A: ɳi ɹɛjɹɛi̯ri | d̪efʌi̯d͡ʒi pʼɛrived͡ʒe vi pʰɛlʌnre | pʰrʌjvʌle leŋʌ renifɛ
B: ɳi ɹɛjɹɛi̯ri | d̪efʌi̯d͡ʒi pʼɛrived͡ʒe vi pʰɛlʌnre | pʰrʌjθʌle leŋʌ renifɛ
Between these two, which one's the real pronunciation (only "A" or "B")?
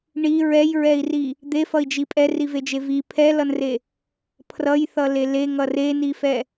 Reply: B